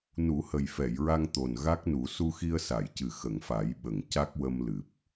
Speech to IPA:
n u˨˩˦ h ə˨˩ j f ɛ˨˩˨ j ɹ a˧ ŋ t̪ o˨˩ n ɣ a˦˥ k̚ n u˨˩˦ s u˧ x i˧ ə̯ s a˨˩˨ j c ɨ˨˩ x ə˨˩˨ ŋ f a˨˩˦ j ɓ ə˨˩ ŋ c a˦˥ k̚ w ə˧ m l ɨ˨˩ p̚

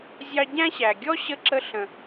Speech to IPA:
zʲ ɑ˦ ɟ æ̃˥ ɕ æ˨ ɡʲ ɔ˥ ɕ ə˦ ǁ ə˦ ɬ ə̃˨

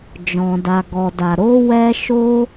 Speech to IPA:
d͡ʒ ɔ̃˧ d a˧ ɡ ɔ˧ d a˧ ɾ o˦ w ɛ˦ ʃ o˦

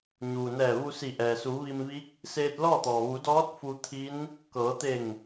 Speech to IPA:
ɲ uː˩ n ɛː˧˩ ʋ u˧ s i˧˩ ʔ ɛː˩ s uː˩˧ ʋ i˧ m ʋ i˧˥ k̚ | s eː˧ t̚ l ɔː˥˨ t̪ ɔː˩ ʋ u˩˧ d ɔː˧˥ t̚ f u˧ t̪ʰ i˧˥ n | k ɤː˩˧ t̪ e˧˩ ŋ

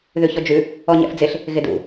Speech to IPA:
ð ʉ ç ɔ d͡ʒ ʉ | ɔ ɲ ɛ̰ f d͡z ɪ ɬ | ɣ ɪ d ṵ

